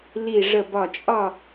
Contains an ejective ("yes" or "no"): yes